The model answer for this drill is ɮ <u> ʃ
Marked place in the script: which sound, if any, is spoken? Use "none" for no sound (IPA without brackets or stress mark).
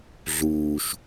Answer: uː